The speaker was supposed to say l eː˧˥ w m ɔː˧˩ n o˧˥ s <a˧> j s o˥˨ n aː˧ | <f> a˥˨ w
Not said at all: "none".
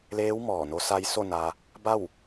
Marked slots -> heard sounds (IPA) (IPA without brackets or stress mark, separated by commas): a˧, b